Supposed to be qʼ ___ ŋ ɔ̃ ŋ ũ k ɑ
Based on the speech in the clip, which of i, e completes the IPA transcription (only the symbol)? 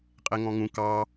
e